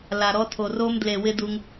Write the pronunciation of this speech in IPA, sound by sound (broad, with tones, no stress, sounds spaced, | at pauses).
l a˨ ɾ ɔ˧ tʰ o˨ r o˧ m d l e˨ w ɪ˦ d u˧ ŋ